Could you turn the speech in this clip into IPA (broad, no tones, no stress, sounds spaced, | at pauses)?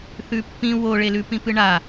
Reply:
θ ʉ pː ĩ w o ɭ e l ʉ p ĩ p ɨ ɳ a